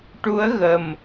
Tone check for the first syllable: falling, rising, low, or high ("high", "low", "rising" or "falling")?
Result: rising